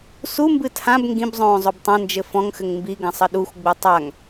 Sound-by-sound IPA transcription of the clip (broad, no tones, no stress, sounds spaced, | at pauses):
s u m b ɨ tʰ ã b ŋ ɡ ĩ b zˤ õː zˤ o b tˤ ɐ̃ n d͡ʒ ɘ f ɔ̃ ŋ x ɘ ŋ m b i ɡ ɐ̃ sˤ ɘ ɗ u xʷ ɡ͡b u tˤ a ŋ